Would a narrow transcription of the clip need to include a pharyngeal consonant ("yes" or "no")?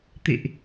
no